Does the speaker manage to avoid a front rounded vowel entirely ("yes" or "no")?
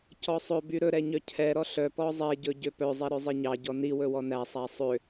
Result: no